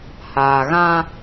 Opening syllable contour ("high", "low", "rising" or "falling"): low